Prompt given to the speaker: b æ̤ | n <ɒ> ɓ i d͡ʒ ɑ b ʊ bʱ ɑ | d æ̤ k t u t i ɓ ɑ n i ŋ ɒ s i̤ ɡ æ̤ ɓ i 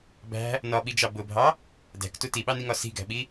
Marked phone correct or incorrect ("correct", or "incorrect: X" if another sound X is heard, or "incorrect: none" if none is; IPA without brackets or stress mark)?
correct